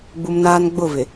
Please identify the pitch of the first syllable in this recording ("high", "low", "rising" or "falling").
low